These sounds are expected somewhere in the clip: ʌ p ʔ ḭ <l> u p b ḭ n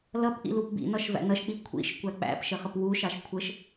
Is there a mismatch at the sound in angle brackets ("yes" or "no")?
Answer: no